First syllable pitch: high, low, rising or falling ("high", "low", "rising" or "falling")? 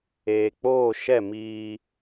low